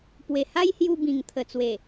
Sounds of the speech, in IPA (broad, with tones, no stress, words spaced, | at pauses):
pwe˨˩ha˦jhju˧ bĩ˨˩ŋt̪ʰə˨˩t͡swe˨˩